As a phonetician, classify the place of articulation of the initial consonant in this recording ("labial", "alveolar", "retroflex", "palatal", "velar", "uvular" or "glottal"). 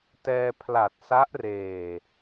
alveolar